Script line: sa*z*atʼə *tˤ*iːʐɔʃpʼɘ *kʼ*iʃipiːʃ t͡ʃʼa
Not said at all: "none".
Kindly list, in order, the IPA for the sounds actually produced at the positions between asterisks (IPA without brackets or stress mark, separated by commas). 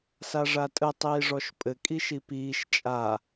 ʐ, tˤ, kʼ